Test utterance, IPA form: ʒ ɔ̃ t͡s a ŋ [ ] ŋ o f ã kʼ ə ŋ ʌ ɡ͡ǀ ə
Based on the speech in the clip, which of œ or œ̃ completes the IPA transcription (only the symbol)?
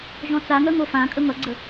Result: œ